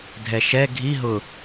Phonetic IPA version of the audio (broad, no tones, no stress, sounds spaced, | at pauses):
dʱ ɛ ʃ ɛ ɡʱ i ɦ ʊ